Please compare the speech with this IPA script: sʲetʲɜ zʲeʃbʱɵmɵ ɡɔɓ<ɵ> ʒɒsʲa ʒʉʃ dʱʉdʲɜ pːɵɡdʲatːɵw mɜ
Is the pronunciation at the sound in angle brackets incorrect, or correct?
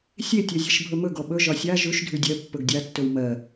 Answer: correct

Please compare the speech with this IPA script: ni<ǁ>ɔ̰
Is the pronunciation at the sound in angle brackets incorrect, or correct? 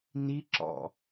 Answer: correct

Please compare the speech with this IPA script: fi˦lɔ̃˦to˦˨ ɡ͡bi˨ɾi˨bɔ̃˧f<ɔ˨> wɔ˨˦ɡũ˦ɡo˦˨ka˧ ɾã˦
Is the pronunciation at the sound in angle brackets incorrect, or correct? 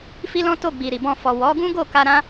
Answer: correct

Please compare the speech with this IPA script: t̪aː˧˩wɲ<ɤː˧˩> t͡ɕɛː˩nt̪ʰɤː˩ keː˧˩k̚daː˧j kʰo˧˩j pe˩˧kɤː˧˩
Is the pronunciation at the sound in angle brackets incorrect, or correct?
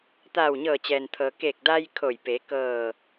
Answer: correct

